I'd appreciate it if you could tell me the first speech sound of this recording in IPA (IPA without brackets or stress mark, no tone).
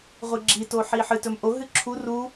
ʁʷ